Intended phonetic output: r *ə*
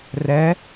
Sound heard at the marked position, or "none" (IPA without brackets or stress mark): ɛ